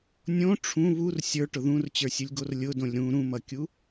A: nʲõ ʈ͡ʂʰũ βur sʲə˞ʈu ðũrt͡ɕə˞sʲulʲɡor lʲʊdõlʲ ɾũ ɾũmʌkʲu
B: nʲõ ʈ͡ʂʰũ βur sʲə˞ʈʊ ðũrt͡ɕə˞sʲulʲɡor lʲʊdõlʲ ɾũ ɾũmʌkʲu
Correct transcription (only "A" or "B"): B